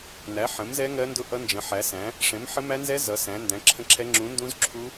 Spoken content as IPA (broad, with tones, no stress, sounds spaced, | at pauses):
n æ˨˥ ħ ə̃˨˥ m z ɛ˦˥ ŋ ɜ˦˥ n d ʊ˦˥ ʔ ʌ˦˥ n d͡ʒ ə̃˨˥ ħ æ˨˥ s æ̃˨˥ | ʂ ɛ̃˨˥ m ħ ə˦˥ m æ˦˥ n z ɛ˦˥ z ʌ˨˥ s æ̃˨˥ n d æ̃˨˥ ǁʰ ə̃˦˥ ǁʰ ɛ˦˥ ŋ͡ǁ ũ˨˥ n d ũ˦˥ z ǁʰ u˦˥